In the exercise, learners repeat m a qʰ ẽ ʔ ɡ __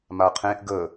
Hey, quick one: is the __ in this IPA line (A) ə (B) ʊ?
A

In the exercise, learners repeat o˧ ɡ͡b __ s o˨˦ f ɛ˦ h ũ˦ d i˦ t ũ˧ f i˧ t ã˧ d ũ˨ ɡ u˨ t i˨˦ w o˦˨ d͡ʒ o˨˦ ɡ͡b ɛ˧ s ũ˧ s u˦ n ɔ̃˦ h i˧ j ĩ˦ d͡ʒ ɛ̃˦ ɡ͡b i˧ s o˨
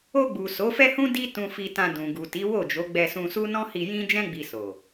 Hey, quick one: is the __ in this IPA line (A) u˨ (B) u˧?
A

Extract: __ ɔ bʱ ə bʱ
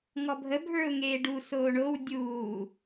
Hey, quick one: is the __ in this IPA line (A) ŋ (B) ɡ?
A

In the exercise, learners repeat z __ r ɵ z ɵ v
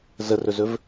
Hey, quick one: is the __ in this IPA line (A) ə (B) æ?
A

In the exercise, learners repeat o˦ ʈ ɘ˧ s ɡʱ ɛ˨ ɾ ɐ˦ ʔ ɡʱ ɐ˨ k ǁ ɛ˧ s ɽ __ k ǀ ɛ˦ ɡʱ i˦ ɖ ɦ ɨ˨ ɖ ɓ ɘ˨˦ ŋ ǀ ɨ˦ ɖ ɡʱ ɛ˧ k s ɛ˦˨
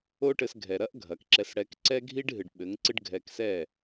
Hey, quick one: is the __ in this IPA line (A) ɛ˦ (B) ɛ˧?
B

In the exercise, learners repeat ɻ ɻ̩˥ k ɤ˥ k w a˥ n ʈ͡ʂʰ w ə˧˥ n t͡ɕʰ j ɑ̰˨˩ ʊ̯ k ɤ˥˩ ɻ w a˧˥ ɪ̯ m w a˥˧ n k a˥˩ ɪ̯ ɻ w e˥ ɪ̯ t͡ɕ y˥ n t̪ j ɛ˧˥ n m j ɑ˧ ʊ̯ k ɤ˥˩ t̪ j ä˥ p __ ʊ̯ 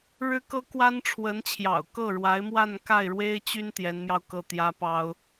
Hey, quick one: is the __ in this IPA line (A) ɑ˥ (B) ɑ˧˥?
A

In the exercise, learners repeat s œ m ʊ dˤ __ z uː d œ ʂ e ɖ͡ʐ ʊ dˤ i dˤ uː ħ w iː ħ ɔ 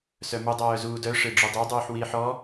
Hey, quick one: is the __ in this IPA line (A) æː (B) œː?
B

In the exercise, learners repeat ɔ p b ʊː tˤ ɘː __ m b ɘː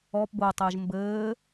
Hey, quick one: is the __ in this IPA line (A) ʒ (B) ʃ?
A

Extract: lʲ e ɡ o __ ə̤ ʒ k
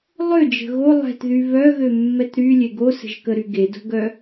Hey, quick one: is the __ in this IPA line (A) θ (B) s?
B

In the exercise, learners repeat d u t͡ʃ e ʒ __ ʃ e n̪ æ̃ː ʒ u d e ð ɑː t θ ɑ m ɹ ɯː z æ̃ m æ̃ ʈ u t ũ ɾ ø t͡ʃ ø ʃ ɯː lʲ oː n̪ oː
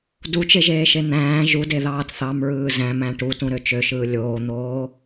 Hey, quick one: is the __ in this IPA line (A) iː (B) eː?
B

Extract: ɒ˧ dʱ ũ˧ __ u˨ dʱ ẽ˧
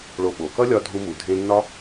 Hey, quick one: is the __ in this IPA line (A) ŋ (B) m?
B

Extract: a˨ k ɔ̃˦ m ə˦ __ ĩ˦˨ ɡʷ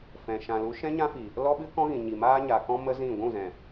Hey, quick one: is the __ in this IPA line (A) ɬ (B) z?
B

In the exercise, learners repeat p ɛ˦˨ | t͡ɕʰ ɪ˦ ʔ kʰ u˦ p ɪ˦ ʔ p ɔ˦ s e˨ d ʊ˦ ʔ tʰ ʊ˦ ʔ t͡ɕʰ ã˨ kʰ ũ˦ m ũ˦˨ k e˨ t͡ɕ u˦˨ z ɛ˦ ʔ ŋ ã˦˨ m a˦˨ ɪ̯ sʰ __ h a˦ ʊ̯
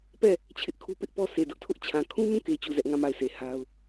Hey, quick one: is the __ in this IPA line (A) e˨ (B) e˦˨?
A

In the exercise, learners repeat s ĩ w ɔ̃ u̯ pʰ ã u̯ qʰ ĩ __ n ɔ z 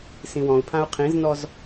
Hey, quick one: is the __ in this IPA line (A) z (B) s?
A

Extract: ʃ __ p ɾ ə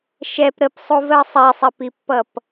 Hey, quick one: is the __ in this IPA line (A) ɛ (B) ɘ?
A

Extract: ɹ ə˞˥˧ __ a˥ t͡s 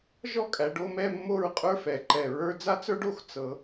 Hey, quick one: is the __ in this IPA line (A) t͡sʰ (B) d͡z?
B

